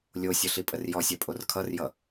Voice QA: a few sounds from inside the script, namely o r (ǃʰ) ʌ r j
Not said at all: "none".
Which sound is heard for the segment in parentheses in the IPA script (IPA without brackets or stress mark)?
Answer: kʰ